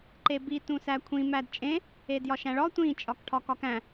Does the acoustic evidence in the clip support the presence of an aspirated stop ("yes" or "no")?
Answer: yes